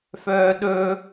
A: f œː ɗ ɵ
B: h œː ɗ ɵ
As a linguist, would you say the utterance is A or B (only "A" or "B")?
A